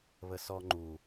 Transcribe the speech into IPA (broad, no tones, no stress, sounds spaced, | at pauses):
β ə s ɔ ŋ͡ǃ u